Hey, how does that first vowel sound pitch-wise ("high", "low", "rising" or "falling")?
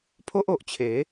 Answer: high